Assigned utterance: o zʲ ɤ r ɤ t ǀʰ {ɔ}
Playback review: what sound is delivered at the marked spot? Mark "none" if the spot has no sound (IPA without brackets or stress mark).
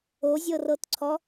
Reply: ɔ